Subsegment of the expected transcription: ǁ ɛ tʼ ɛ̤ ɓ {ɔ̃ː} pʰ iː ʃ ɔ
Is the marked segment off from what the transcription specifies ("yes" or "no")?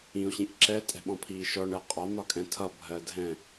yes